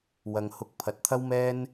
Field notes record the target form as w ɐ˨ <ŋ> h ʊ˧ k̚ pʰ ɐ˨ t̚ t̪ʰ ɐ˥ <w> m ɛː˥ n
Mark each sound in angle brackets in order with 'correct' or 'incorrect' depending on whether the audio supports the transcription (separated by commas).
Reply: correct, correct